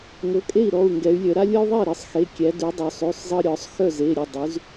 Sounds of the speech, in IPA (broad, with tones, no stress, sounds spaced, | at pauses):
ŋ ɤ˩˧˩ kʼ e˥˩ i̯ ɾ ɔ˩˧˩ u̯ ŋ ɡ ɛ˩˧ y̯ lʲ œ˩˧ ɾ a˦ lʲ ɤ˦ y̯ ðˤ ɛ˥˩ i̯ ɾ ɤ˩˧ sˤ x e˩˧˩ kʲ æ˩˧ d ʉ˩˧ dˤ œ˩˧ sˤ ʉ˩˧˩ sˤ zˤ ɤ˦ ɾʲ ɔ˩˧ sˤ x œ˥˩ z e˩˧˩ ɾʲ ɛ˩˧˩ dˤ ʉ˩˧ z